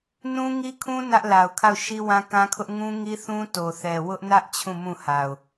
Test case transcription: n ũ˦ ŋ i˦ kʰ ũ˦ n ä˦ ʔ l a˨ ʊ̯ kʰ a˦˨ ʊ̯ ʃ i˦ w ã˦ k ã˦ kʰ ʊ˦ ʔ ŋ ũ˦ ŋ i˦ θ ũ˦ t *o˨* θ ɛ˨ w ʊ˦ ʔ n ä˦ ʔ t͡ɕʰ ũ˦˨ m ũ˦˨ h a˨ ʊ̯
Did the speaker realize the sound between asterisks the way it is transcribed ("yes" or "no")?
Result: yes